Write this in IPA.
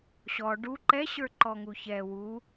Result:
ɕ ɔ ɖ u ǃ ɛ ɕ ə˞ ǃ ɔ ŋ u ç ɛ w u

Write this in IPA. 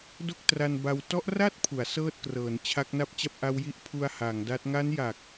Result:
d o˥˩ k̚ t r a˧ n b a˧ w t ɔ˦˥ ʔ r a˥˩ t̚ pʰ u˩˦ a̯ s ɤː˥˩ t̚ k r ɤː˩˦ n t͡ɕʰ a˦˥ k̚ n a˥˩ p̚ t͡ɕ a˥˩ p̚ ʔ a˦˥ w j i˦˥ ʔ pʰ u˧ a̯ h a˩˦ ŋ d a˦˥ t̚ ŋ a˦˥ n j a˨˩ k̚

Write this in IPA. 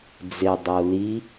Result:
d͡z ɪ dˤ o l i

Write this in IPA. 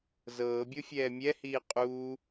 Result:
z ɤː bʲ o fʲ ɛː mʲ ɛ h iː qʼ uː

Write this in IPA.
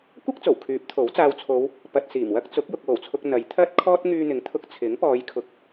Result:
kʷ ɐ˥ k̚ t͡s o˨˩ w kʰ yː˨˥ p̚ t̪ʰ o˨˥ w t͡s aː˧ w t͡sʰ o˨˧ w | p ɐ˧ t̚ s iː˨˩ m w ɐ˥ k̚ t͡s ʊ˨˥ k̚ j ʊ˨ k̚ w o˨˩ w t͡sʰ ʊ˧ k̚ n̪ ɐ˨˧ j t̪ʰ ɐ˧ t̚ kʰ ɔː˧ t̚ ŋ yː˥ n̪ ɪ˧ ŋ t̪ʰ ʊ˥ k̚ t͡sʰ ɪ˨˥ ŋ p ɔː˨˧ j kʰ ʊ˨ k̚

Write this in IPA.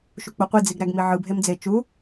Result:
ʃ u k͡p o qʷ i d͡z i ɡ ɾ æ ɡ m i ʕ ɯ bʱ e m d͡z e t͡ʃ u

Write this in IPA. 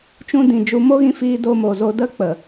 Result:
t͡ʃ ũ˧ d ĩ˨ d͡ʒ u˧ m o˦ ɣ ĩ˧ f iː˧ d o˧ m o˨ z o˧ d ə˦ k͡p ə˨

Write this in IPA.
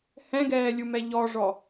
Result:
h ɛ̃ ɡ ɛː lʲ u m ɛ ʎ ɔ ʐ ɔ

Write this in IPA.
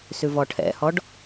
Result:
s ʉ v ɔ ʈʰ ɛ̰ h ɔ ɖ

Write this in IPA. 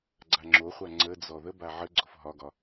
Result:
ɡ͡ǀ a ŋ͡ǁ o χʷ a ŋ͡ǀ ə d͡z ɔ ð ə b a ʕ ə ɡ͡ǀ o f ɦ ɒ ɡ ɒ

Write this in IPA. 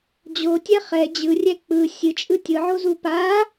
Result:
d͡ʑ o tʲ ɛ χ ɛ d͡ʑ ɯ rʲ ɛ k͡p ɯ sʲ ɨ t͡ʃʼ ɯ tʲ ɯ ʕ o z u p a

